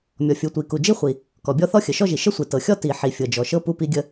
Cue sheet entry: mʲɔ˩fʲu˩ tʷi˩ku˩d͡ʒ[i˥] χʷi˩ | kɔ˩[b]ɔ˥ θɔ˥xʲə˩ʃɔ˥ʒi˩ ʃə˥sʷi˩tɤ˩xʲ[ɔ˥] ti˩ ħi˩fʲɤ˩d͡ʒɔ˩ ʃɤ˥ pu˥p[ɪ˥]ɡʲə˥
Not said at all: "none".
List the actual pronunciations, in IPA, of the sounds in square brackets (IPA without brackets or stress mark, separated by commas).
i˥, bʲ, ɔ˥, i˥